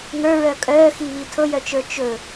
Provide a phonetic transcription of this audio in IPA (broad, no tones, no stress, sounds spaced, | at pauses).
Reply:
ŋ ə˞ ɹ œ kʼ œː x i β i tʰ ɤ j œ t͡ʃ ə˞ t͡ʃ ɵ